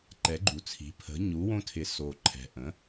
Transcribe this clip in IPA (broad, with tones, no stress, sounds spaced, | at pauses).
ǃ ɛ˩˥ ɡ͡ǃ u˨˩ t͡sʰ i̤˩˥ pʰ ə̤˩˥ ɲ u˩˥ w õ˦ tʰ ɪ˩˥ s o˨˩ ǃʰ ɛ̤˨˩ ʔ ə̃˩˥